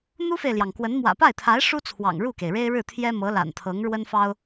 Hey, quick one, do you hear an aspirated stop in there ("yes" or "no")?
yes